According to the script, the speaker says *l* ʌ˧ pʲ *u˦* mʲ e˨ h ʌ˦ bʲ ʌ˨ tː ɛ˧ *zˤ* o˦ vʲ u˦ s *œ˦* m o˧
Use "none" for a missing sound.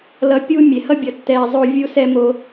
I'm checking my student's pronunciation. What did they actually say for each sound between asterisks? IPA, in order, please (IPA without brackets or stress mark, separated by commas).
l, u˦, zˤ, ɛ˦